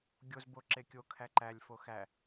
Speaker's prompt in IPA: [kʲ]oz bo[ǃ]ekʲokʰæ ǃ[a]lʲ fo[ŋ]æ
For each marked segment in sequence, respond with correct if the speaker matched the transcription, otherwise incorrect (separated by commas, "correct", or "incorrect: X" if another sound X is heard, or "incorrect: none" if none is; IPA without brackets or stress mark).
incorrect: ɡʲ, incorrect: ǁ, incorrect: æ, incorrect: x